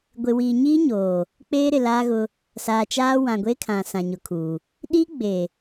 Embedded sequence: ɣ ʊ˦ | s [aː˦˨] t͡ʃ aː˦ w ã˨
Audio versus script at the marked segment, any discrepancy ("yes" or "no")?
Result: yes